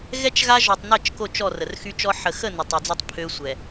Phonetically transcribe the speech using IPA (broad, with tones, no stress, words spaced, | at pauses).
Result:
ɣɛ˦t͡ʃɣa˦ ʒɔ˨tˤnɛ˦˨t͡ʃ ko˦˨t͡ʃɔ˦˨ rə˨rxy˦t͡ʃɔ˦ ħə˨xə˦˨ nə˨tˤœ˨d͡zɔ˦tˤ pʰø˦sʷɛ˨